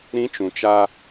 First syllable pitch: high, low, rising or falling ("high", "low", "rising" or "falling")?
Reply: high